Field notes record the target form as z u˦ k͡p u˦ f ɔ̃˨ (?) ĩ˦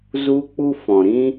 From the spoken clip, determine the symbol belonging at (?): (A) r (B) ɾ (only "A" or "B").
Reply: B